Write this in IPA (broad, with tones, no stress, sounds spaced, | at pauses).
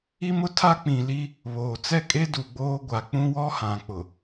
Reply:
i˦ m ʊ˦ tʰ a˦ k͡p ĩ˨ l i˦ | β oː˨ t͡s ɛ˦˨ kʼ e˦ d u˨ ɡ͡b oː˦ ɡʷ a˨ k͡p ũ˦ w ɔ˦ h ã˨ k͡p ʊ˨